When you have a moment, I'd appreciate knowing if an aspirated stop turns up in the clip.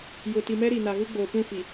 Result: no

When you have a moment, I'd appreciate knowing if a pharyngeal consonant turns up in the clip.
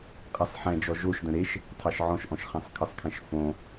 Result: yes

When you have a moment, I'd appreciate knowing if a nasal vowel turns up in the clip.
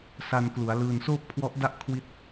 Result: no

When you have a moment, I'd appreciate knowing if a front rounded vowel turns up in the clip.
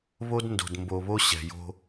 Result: no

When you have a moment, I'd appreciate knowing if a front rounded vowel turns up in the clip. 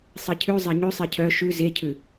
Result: yes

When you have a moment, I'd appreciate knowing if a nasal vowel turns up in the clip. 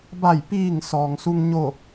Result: no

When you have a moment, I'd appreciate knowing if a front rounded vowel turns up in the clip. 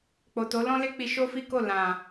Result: no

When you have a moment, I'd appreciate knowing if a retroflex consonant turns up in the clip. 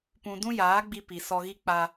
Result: no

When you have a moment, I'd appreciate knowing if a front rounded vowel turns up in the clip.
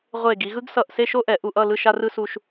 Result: no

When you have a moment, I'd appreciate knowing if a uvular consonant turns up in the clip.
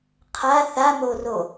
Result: yes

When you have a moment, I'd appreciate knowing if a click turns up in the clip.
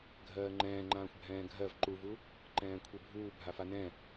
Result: yes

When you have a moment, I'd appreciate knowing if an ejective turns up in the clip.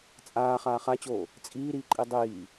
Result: yes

